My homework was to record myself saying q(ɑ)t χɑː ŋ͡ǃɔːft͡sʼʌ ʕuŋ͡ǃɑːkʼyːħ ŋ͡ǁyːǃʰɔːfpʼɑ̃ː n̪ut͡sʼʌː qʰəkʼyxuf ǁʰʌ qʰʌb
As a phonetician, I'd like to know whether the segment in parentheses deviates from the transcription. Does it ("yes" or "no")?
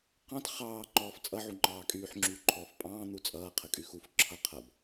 yes